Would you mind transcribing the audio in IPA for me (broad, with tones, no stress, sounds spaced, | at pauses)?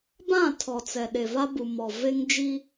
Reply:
b ã˦˨ tʰ ɔ˨ t͡s ɛ˨ ɗ e˨ v a˦ b u˨ m ɔ˨ v e˦ ŋ d͡ʒ i˦